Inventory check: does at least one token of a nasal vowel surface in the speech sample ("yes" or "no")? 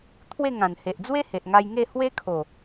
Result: yes